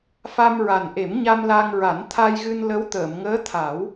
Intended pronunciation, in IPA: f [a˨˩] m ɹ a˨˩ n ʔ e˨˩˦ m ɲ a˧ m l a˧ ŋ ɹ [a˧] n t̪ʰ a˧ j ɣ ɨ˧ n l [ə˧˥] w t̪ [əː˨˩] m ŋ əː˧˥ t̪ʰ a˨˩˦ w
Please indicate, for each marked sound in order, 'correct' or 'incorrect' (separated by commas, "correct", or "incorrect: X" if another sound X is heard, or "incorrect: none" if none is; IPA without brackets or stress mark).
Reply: incorrect: a˧, incorrect: a˨˩˦, correct, incorrect: əː˨˩˨